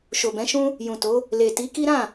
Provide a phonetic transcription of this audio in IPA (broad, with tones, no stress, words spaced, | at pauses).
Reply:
ʃo˨bɛ̃˨˦ʃũ˦ | jũ˨to˨˦ | le˨ ti˨˦ki˦ɾã˦˨